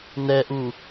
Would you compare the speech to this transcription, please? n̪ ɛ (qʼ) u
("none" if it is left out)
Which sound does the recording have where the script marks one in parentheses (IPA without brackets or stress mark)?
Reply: ʔ